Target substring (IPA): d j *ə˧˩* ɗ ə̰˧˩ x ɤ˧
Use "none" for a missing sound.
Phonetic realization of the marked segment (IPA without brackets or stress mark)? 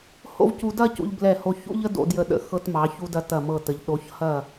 ə˧˩